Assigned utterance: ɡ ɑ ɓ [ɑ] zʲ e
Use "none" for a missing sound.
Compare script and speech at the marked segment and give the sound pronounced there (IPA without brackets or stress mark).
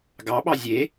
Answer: ɑ